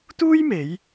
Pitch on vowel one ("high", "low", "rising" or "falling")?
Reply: high